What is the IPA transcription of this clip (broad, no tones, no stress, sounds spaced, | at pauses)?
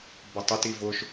b ə tˤ ɪ t i v ʊ ʃ